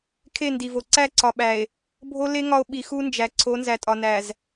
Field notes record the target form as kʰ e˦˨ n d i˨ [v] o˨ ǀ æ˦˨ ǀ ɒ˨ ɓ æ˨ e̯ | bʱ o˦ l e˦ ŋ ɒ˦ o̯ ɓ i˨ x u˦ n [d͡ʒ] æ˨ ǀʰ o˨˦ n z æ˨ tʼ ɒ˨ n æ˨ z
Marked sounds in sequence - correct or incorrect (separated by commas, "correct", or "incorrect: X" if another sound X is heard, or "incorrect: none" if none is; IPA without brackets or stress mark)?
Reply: correct, correct